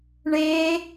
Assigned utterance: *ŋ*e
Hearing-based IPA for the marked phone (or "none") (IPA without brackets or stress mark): ɳ